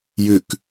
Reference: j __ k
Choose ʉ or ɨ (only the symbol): ʉ